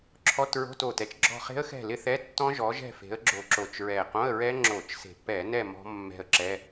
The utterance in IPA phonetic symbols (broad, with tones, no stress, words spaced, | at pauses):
ǁʰɔ˧˥˧tɹo̤˧˥˧to˨˩tɛ˨˦t͡ʃ ɡ͡ǁɔ̤˦˨χe̤˦˥ə̯xɛ̤˦˨ lɪ˦˥θɛ˧˥˧tːɔ̃˦˥ ʒɔ˨˦ʒɛ̤˦˨fe̤˨˦ə̯ ɡ͡ǁo˨˩ǁo˨˩t͡ʃ ɹɛ˨˩qõ˧˥˧ə̯ɹɛ˦˥ ŋ͡ǁo˧˩˧t͡ʃse̤˨˩ pɛ˧˩˧nɛ˦˨ mɔ̤˦˥mːɛ̤˦˨ə̯ǁɛ˧˥˧